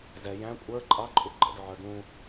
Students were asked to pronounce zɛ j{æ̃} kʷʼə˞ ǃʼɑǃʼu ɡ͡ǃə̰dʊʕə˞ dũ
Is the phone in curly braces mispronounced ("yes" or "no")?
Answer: no